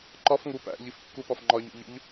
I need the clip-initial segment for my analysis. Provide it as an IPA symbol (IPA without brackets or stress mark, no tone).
ǃ